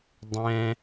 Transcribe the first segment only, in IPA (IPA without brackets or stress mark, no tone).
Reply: dˤ